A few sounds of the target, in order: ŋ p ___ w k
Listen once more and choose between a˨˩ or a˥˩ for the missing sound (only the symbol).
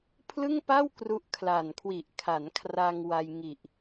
a˥˩